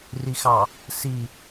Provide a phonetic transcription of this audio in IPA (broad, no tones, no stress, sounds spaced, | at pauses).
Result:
r i x ɑ | s i